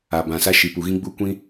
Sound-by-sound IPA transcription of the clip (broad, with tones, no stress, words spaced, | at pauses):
a˨bã˨ sa˧ ʃi˨ pu˨ɣĩ˦ ɡ͡bu˦kʷĩ˦